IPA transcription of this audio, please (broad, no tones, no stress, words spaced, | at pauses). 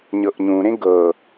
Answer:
ɲɤʔɲũɾẽ ɡɤ